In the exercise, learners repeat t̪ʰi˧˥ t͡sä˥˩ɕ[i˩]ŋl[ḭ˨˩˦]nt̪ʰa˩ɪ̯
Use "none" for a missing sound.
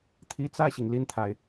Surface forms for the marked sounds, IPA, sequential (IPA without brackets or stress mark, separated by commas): i˩, i˥˩